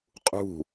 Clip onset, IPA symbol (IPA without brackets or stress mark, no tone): qʼ